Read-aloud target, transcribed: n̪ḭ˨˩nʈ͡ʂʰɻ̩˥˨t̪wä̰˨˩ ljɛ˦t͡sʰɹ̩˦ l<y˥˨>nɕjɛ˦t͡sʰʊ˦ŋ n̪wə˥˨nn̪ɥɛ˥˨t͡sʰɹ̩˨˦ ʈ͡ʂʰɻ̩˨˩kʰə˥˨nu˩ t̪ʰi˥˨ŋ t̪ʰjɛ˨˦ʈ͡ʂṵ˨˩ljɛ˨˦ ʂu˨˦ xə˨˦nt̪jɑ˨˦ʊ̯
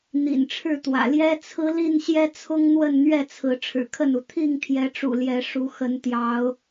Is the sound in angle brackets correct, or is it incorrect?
incorrect: i˥˨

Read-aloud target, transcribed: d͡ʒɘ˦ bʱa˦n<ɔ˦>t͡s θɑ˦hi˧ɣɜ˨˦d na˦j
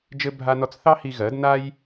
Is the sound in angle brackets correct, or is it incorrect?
correct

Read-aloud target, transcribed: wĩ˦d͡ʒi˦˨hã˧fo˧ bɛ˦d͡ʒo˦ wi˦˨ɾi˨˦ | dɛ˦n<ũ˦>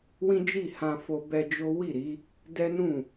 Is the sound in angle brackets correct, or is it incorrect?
incorrect: ũ˦˨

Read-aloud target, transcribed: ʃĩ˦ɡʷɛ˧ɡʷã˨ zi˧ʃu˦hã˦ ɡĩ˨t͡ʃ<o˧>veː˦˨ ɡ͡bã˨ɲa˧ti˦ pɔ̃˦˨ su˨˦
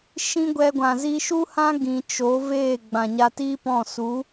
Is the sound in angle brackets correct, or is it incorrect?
incorrect: o˨˦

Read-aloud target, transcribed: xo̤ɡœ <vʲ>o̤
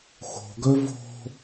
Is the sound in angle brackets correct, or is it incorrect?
incorrect: v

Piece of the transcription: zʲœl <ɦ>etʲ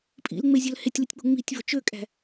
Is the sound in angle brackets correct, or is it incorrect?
incorrect: h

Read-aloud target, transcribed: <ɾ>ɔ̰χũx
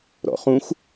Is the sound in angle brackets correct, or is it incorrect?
correct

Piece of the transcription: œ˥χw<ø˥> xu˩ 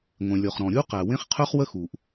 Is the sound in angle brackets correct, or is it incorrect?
incorrect: ə˥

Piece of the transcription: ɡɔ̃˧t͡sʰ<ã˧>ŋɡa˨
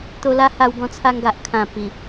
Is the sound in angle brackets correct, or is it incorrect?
incorrect: a˧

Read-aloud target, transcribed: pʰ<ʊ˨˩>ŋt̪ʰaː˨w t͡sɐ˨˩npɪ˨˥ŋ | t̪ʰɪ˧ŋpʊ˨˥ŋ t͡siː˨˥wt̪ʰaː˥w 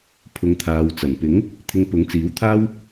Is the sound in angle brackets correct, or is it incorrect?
incorrect: ʊ˨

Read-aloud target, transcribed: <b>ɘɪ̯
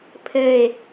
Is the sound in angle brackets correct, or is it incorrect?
incorrect: pʰ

